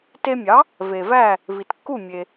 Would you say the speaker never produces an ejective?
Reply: yes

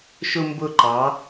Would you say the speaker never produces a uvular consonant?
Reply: yes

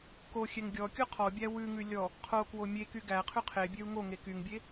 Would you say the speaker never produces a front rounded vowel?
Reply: no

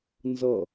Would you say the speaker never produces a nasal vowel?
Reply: yes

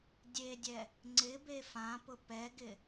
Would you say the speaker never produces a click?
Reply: no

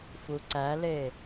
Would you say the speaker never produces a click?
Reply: no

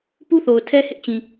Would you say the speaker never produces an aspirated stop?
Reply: no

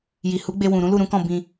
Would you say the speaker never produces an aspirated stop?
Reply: yes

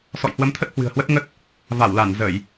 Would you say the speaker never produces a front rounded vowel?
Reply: yes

